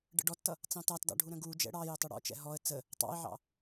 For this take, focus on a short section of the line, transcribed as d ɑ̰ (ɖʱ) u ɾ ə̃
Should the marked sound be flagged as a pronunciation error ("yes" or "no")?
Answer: no